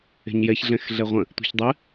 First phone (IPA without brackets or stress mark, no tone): e̤